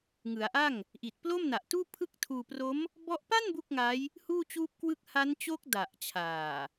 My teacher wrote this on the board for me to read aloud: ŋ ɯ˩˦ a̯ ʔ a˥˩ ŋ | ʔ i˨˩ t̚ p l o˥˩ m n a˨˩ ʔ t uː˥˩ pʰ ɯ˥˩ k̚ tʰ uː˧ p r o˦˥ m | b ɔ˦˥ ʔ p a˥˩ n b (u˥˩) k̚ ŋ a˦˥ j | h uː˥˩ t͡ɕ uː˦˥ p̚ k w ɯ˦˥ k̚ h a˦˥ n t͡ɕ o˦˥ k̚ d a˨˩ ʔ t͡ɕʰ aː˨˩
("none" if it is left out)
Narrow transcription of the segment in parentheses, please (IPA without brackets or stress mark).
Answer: u˥˩